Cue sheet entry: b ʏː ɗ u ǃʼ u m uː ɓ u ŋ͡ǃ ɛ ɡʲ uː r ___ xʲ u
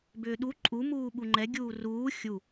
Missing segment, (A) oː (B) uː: B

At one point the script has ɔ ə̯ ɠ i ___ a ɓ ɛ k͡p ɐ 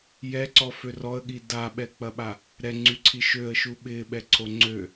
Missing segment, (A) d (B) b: A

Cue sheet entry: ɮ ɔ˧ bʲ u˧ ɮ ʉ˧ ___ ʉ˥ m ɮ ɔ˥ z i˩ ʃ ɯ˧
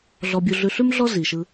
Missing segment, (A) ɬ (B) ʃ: A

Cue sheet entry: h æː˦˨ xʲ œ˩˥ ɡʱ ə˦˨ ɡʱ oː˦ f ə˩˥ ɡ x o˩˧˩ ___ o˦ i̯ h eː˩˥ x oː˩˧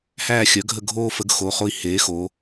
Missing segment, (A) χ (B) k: A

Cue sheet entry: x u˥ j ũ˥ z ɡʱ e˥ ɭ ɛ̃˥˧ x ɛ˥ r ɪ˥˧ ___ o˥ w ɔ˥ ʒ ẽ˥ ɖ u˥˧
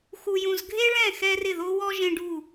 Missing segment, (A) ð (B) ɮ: A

